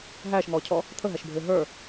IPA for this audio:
ɦ æː ʃ ŋ ɔː cʰ ɔ | t̪ʰ ə ɦ æ ʃ bʱ ɪː ɦ ə˞

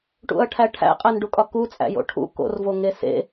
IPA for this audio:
ʈ ṵ ɐ̯ ʈʰ æ ʈʰ æ̰ qʼ æ n ɖ u kʼ ɒ k u t͡sʼ æ̰ j o̰ ʈʰ ṵ k o̰ r v o ŋ e s ḛ

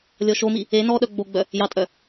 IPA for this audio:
lʲ ɔ ʃ o m i | e n ɔ ɗ œ ɡ͡b o ɡ͡b œ | j ɑ tʼ œ

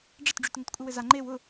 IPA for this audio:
ɖ͡ʐ ɘ t ɖ͡ʐ y t ŋ ɘ t kʷʼ ɘ w ɘ z a ŋ͡ǃ e w ʊ

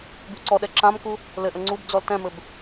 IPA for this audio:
b y ǀ ɔ ɗ ɛ ǁ ã m k u | l ɘ ʔ ə ŋ͡ǀ u b d͡z ɔ l t ɛ̃ m ɘ b

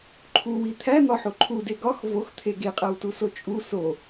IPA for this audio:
ǃʰ u w i t̪ʰ æ n̪ ɒ ħ o ǃʰ u d e ɡ ɒ x v o x t̪ʰ e ɡ e qʼ æ w t u s o t͡ʃʼ u s o

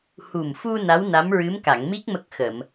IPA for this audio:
h u˨˩ m f u˧ n a˧˥ w n a˧˥ m ɹ ɨ˧˥ m k a˨˩˨ ŋ m i˦˥ k̚ m ə˦˥ k̚ x ə˨˩˨ m

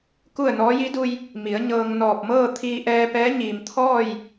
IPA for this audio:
k u˥˨ ə̯ n ɔː˧˥ j i˧˥ d u˧ j | m i˩˧ ə̯ ɲ ɤː˧ ŋ n ɔː˧˩ p̚ m ɤː˥˨ t̪ʰ iː˧ ʔ ɛː˧ p ɛː˧˥ ɲ iː˩ m t̪ʰ ɔː˥˨ j

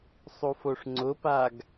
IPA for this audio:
sˤ u f o ʂ ŋ͡ǀ ʊ p a ɡ

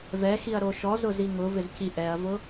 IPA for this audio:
v ɛ x i ɐ̯ ɾ o ʃ ɔ z ʊ z i ŋ ʊ v ɪ z c i ʔ ɛ ɐ̯ v ʊ

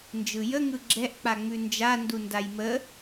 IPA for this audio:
n d͡ʒ ɯ j ə ŋ ɯ ɡ͡ǁ ɛ ʔ k͡p a ŋ͡m ʉ n d͡ʒ a n d u n d a j m ə

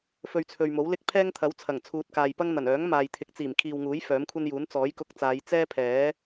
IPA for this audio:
f ɵ˧ ɥ t͡sʰ ɵ˨ ɥ m o˨˥ w l ɪ˥ k̚ pʰ ɛː˥ ŋ t̪ʰ ɐ˨˥ w t͡sʰ ɐ˨˩ ŋ t͡sʰ uː˨ t̚ k aː˨ j p ɐ˥ ŋ n̪ ɐ˨˩ n œː˨˥ ŋ m aː˨ j t̪ʰ ɪ˨˥ k̚ t͡s iː˨˩ m kʰ iː˨ w ŋ uː˨˥ j f œː˨˥ m kʷʰ ɐ˥ n j uː˨˥ n t͡s ɔː˨˥ j k ʊ˧ k̚ t͡s aː˨˧ j t͡s ɛː˥ pʰ ɛː˨˥

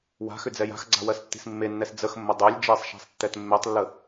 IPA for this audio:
w a̤ x ʏ d͡z ɛ j a̤ x ɡ͡ǀ a̤ w ɜ s tː i̤ s mː e nː ɛ s d͡z ə x mː ə dˤ ø lʲ d͡ʒ e sˤ ʃ a̤ sˤ tː ɛ t mː e tˤ lː ə

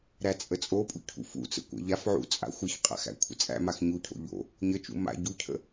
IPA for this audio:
ɾ æ t͡sʼ ə t͡sʼ o pʼ ṵ cʰ ṵ f ṵ t͡s ə̰ kʷ æ̰ ʎ a f ʕ ṵ t͡sʼ a̰ xʷ ə ç qʼ a̰ x æ̰ kʷʰ ə̰ t͡sʼ æ̰ m a x ɲ u cʰ o̰ ʎ o̰ | ɲ ə t͡ʃ ṵ m a̰ ɟ u cʰ ə̰

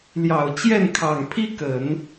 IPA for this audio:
l j ɑ˨˩ ʊ̯ t͡ɕ j ɛ˥˩ n kʰ ɑ˨˩ ŋ pʰ i˥ k ə˨˩˦ n

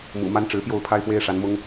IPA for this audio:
m ṵ˨˩ m a˦ n ʈ͡ʂ ɻ̩˨˦ p j o˥˨ ʊ̯ pʰ a˦ ɪ̯ p w e˦ ɪ̯ ʂ a˨˦ n m ʊ˦ ŋ

